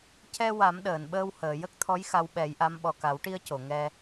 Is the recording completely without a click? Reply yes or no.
yes